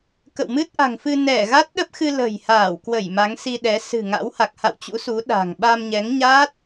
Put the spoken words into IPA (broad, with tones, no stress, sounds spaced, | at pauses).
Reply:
k ə̰˧˨ w m ɨ˦˥ t̚ ʔ a̤˨˩ ŋ f ɨ˧ n ɛ˧˩ ɣ a˦˥ t̚ ɗ ə˦˥ p̚ x ɨ˧ l ə̤˨˩ j h aː˧˩ w k w ə˧˩ j m a˨˦ ŋ s i˧ ɗ ɛ˨˦ s ɨ̤˨˩ ŋ a̰˧˥ w h a˨˩ k̚ h a̰˧˨ w t͡ɕ ṵ˧˥ s u˨˦ ɗ a̤˨˩ ŋ ɓ a˧ m ɲ ɛ˨˦ ŋ ɲ aː˦˥ t̚